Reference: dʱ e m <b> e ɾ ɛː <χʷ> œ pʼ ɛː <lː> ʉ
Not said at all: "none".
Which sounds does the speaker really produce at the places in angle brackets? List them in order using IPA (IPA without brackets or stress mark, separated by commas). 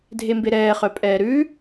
b, χ, ɾ